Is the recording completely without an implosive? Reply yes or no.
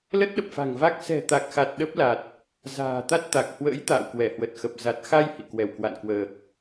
no